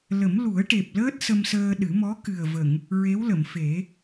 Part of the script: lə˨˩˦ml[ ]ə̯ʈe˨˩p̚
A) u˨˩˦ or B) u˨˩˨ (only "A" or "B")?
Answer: A